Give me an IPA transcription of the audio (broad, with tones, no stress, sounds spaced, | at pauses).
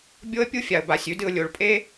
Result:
bʲ o˦ ə̯ pʲ u˦˨ fʲ a˨ ə̯ b a˨ sʲ ʉ˦ d ɨ˨ ʊ̯ lʲ o˨˦ ɭ pʼ e˦